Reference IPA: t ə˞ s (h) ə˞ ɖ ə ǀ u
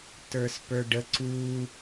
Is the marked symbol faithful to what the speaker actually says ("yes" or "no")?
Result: no